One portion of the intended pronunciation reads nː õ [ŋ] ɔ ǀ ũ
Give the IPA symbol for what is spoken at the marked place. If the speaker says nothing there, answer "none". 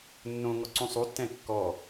ŋ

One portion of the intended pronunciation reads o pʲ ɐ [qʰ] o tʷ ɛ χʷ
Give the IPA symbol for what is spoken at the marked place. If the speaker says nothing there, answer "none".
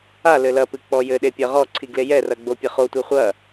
χ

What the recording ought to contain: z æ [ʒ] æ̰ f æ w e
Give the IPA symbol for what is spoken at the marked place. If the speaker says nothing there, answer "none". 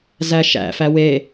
ʃ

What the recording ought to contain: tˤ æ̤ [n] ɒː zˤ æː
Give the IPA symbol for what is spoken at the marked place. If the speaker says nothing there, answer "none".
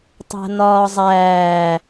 n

